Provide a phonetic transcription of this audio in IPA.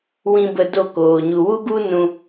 wĩ˧bə˧do˦˨koː˨ ɲu˨wu˦ɡu˦ nũ˧

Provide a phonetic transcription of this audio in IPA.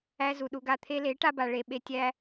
æ˦zu˨ɗu˧ɡa˧ t̪ʰe˧le˨˦ʈa˧ba˨ ɭe˨ ɓe˧ tʲæ˦

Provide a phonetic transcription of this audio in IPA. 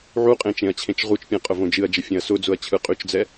ʕuqʼẽ t͡ʃẽɐ̯t͡ɕʰẽt͡ʃʁut͡ʃpʲẽ qʼʊvõd͡ʒɨɐ̯d͡ʒə fʲẽɐ̯sʊd͡zʊɐ̯ t͡ɕʰɯqʼyt͡ʃd͡zɛ

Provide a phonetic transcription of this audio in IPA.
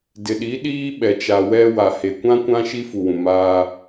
dɪ˨ɗi˨˦ɗiː˦ ɓɛ˨t͡ʃa˨ wɛ˦ wa˨he˨ kʷã˦kʷã˦ ʃi˦fu˨wũ˨maː˦

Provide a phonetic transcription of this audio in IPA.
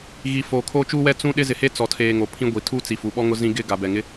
ɣi˨ foː˨kʰoː˦t͡ʃuː˦wɛ˦ t͡sũ˦ɗɪ˦ zɪ˨he˦t͡sɔ˨tʰeː˨ ŋo˨pʰĩ˦ɡʷi˨ tʰuː˦t͡si˨fu˨ɓɔ˦ ŋʊ˦zĩ˦ ɡɪ˦ ɡa˨bɛ˨ŋɪ˦

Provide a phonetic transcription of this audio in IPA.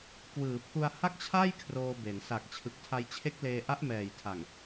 kwɯː˩˦pʰu˧a̯ha˥˩k̚t͡ɕʰa˥˩j kʰroː˧be˩˦n sa˨˩k̚ t͡ɕʰɯ˨˩k̚tʰa˧jt͡ɕʰe˦˥k̚leː˧ ʔa˦˥ʔmɛː˨˩jtʰa˨˩ŋ

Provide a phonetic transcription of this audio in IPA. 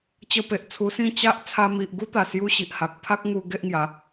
t͡ɕə˧pe˨ʔt͡sʰu˧sĩ˥˧ t͡ɕa˦ʔ t͡sʰa˧mi˨ʔɡu˦t̪a˨˩ sju˦ɕi˨ʔ ha˨k̚ pʰa˦k̚ŋu˧ ɡe˦ʔŋja˨˦

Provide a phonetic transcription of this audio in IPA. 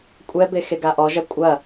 kʷʼɛbe xeɡaʔɔʒɐ kʷʼɐ

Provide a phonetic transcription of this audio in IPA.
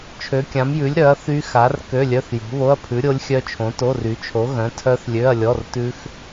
t͡ʃʰø˨˥kʲã˨˥mjʉ˨˥lʲɾœ˨˥ɐ̯ θy˦˥xa˨˥r kø˧˥˧lʲœ˧˥˧θjo̤˨˥ βo˧˥˧ɐ̯pʰʉ˨˥ɾʲo˦˥lʲxʲœ˦˥ t͡ʃʰõ˨˥to˧˥˧ry˨˥ t͡ʃʰo˨˥ ɣœ̃˨˥tʰœ˦˥θ lʲø˧˥˧ɐ̯lʲɔ˧˥˧rtʉ˦˥x

